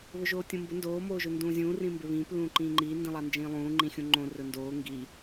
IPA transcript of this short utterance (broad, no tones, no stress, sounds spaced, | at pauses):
β ɵ ʒ oː tʲ õ m b ʊ n d oː m oː ʒ ɵ n d ũː zʲ ũː r ĩ m b ɪ β ĩː p l ũː ǃ ĩː ŋ͡ǃ iː n d ĩ lˠ a n d͡ʒ ĩː lˠ ũː ŋ͡ǃ ĩ xʲ ũ ŋ͡ǃ õ r ɵ n d oː ŋ ɡ i